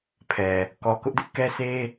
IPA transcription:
pʰɛ˨ | kɔ˨kʊ˦ʔdɪ˦ʔkɛ˦ sʰe˦

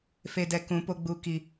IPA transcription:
fe˨dɛ˨ kũ˨˦po˧ɡ͡bu˧ ki˨

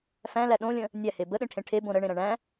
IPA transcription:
fæ̃læ ɗõlʲə̃ | nʲæhe bəɗẽʈʰẽ ʈʰebõ ɾəɳẽɾæ̃ ɳæ̃

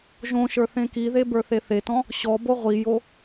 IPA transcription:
ʒõʃə˞ θẽkiðe bə˞θeθetɔ̃ | ɕɔbo ʁʷijo

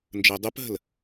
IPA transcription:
nd͡ʒəɪ̯dˤupɦə̤l

